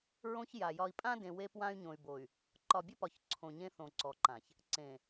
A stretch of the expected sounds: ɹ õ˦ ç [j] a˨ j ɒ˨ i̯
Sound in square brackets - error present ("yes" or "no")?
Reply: no